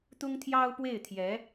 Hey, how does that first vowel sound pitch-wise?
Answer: high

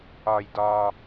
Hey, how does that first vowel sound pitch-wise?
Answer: low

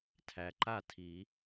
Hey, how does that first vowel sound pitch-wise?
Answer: low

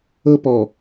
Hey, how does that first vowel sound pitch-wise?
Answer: high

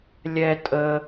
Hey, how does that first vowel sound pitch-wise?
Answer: low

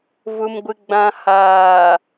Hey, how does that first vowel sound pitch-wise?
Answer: low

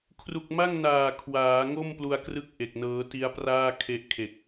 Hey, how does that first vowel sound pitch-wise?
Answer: low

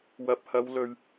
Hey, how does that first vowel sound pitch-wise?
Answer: low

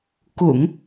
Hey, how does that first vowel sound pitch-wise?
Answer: low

